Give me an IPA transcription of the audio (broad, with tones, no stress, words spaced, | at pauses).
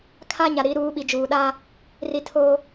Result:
kʰa˦ ɲa˨ɾi˨˦ɾuː˨˦ ɓi˨d͡ʒuː˨ɗa˦ | ri˨ tʰo˦